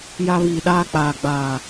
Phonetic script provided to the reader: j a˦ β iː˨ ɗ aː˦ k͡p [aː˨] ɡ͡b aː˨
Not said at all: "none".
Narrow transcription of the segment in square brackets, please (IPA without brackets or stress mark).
aː˨